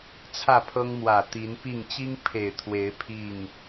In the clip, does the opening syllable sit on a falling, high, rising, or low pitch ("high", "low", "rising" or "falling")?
falling